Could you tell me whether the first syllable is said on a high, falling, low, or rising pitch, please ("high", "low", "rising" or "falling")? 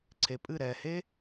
low